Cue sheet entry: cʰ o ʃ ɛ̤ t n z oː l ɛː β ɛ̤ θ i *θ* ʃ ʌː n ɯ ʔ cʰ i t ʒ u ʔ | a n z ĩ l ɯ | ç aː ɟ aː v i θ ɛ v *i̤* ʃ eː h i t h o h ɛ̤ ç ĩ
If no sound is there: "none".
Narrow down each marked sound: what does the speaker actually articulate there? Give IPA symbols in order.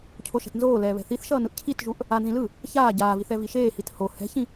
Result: θ, i

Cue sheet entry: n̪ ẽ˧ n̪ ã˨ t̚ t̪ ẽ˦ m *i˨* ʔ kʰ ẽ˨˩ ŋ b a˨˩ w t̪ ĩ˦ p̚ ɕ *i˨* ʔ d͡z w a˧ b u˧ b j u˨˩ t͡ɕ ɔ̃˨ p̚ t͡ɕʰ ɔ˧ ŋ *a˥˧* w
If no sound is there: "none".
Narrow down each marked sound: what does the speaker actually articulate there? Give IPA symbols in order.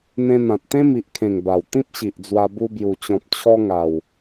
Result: i˨, i˨, a˨˩

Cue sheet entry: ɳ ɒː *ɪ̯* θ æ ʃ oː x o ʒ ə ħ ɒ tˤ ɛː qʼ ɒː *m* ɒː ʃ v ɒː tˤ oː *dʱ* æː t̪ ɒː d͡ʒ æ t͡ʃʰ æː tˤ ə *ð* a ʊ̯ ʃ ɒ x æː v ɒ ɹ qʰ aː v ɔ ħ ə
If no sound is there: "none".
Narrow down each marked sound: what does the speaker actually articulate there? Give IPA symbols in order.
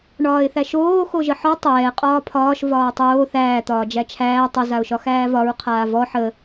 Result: ɪ̯, pʰ, θ, z

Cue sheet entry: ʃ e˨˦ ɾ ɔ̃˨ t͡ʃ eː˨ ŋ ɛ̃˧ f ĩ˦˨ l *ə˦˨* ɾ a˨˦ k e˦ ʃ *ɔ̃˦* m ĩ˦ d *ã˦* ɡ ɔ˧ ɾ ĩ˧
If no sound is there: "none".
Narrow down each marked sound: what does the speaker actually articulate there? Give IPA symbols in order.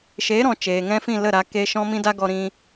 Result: ə˦˨, ɔ̃˦, a˦

